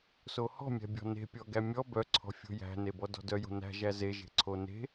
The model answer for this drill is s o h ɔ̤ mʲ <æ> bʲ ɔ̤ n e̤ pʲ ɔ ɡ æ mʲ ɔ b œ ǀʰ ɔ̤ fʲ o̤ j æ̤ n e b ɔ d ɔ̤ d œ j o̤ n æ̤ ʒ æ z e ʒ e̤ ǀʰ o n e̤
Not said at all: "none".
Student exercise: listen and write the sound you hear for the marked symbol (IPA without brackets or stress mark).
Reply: æ̤